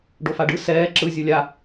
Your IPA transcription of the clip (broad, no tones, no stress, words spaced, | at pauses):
ɖofaɖɯ sɛː ǁɯ zʲɯlʲa